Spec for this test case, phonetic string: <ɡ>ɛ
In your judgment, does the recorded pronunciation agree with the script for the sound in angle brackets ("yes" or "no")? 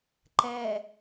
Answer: no